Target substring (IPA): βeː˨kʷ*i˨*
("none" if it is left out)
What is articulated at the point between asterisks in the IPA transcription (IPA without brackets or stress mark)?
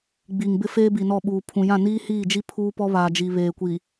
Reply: i˨